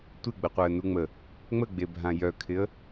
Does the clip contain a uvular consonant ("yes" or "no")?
yes